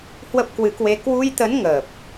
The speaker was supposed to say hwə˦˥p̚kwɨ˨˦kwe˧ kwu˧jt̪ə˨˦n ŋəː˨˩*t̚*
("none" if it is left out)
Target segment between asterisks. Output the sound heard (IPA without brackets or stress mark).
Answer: p̚